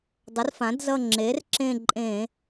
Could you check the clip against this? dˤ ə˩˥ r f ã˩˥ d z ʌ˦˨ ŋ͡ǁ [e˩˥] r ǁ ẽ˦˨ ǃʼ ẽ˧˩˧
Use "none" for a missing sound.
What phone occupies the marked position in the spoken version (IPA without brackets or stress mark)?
e˩˥